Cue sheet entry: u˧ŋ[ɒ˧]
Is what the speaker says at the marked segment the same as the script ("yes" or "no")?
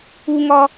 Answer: yes